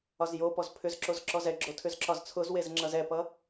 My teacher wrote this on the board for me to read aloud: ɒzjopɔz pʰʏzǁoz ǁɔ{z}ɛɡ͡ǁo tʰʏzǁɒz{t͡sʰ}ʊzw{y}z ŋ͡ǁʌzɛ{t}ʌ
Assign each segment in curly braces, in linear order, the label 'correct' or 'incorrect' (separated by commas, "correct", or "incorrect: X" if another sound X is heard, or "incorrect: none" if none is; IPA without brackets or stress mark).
correct, correct, incorrect: e, incorrect: p